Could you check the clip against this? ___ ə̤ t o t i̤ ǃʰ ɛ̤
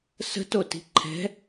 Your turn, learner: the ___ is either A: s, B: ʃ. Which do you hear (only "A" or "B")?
A